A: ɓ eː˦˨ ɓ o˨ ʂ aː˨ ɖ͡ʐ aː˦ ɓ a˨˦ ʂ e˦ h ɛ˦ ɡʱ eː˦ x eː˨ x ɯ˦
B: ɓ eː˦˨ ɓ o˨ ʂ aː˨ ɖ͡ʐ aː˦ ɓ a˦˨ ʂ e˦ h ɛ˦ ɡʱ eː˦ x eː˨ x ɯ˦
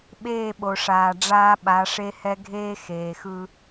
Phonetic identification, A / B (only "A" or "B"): A